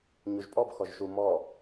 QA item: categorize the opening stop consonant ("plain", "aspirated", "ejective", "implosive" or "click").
ejective